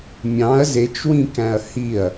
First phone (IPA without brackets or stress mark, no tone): mʲ